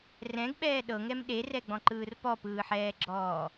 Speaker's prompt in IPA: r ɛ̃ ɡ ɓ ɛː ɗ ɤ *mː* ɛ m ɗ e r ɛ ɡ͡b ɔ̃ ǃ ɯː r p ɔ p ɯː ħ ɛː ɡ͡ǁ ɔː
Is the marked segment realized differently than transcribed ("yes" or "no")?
yes